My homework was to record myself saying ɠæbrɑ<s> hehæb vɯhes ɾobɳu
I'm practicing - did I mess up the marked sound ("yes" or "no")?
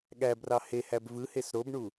yes